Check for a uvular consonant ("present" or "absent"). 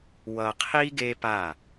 present